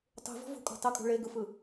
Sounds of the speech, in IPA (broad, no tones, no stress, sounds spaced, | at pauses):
tˤ ṳ v ɔ̤ v ṳ kʼ ɔ̤ tˤ ɯ kʼ ṳ ɭ e ɡ ɯ f ɯ